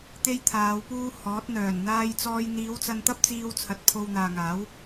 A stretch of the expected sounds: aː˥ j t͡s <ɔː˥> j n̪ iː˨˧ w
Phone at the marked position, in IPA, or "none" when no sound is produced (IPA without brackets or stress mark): ɔː˥